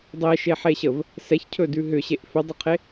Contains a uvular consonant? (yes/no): yes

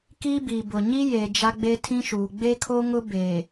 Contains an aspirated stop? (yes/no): yes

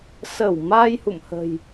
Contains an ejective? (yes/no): no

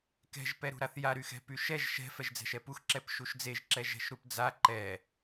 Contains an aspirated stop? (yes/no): no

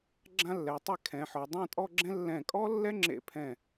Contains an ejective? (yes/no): yes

